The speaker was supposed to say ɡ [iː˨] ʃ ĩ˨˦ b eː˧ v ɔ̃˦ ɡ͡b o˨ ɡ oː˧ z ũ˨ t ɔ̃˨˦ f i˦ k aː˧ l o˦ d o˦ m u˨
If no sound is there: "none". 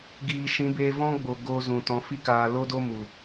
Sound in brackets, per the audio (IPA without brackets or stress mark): iː˨